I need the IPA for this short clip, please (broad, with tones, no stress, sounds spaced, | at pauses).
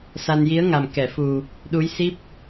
s a˧ n j i˧˥ ə̯ ŋ a˨˩ m k ɛ˨˩˨ f u˨˩ | ɗ u˧˥ j s i˦˥ p̚